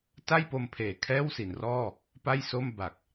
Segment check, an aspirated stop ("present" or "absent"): present